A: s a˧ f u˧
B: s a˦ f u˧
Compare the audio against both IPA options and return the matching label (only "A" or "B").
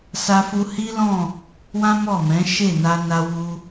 A